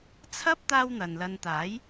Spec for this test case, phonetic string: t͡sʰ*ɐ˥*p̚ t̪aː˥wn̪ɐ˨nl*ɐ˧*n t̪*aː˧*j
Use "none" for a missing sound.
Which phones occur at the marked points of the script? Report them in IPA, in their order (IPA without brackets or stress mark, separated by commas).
ɐ˥, ɐ˧, aː˨˥